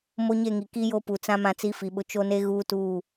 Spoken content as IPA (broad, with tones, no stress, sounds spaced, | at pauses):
m o˦ ɲ e˦˨ ŋ i˨ k i˦ j o˦ p u˨ t͡s ã˦ m ã˦ t͡s i˦ f i˨ ɓ ʊ˦ t͡ʃ o˦ n e˦ ɣ uː˦ t uː˦˨